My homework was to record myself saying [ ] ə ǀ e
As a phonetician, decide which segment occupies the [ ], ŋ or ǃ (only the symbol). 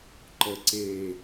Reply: ǃ